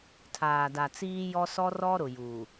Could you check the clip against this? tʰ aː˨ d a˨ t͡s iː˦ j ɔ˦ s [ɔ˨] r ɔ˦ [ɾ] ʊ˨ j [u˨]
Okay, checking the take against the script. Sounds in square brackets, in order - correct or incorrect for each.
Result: incorrect: ɔ˦, correct, incorrect: uː˨

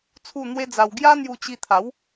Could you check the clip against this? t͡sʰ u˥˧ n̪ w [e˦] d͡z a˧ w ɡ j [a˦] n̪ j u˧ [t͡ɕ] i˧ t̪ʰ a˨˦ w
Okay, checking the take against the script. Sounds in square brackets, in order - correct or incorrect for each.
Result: correct, correct, correct

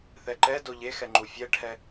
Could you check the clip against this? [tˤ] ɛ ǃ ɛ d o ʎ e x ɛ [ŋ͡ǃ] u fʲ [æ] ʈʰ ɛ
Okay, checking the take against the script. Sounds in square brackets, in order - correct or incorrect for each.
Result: incorrect: θ, correct, incorrect: ɛ

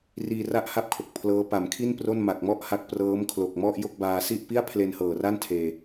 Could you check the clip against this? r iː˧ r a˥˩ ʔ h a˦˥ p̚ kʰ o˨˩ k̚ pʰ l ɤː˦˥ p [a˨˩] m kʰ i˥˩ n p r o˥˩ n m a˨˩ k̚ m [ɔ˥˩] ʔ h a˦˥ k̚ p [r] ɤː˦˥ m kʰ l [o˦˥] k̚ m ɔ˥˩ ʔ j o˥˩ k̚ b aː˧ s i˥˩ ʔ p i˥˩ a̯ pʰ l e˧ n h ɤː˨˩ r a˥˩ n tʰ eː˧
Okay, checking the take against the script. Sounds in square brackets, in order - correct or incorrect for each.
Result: correct, correct, correct, incorrect: o˨˩

